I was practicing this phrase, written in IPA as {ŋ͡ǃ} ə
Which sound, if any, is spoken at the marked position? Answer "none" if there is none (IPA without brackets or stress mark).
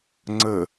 ŋ͡ǀ